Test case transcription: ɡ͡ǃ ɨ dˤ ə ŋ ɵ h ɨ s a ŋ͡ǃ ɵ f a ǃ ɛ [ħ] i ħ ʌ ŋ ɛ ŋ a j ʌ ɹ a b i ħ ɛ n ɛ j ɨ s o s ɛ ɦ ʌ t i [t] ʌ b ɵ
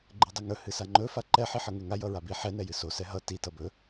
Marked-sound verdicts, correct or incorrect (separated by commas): correct, correct